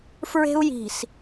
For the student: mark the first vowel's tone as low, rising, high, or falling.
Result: high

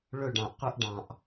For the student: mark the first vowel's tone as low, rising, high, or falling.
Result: falling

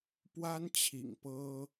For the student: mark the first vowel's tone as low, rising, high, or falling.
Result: high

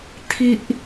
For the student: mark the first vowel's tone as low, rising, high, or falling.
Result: high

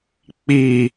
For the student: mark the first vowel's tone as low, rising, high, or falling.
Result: falling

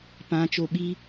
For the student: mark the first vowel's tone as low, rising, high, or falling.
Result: rising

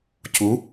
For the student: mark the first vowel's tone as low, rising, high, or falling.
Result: rising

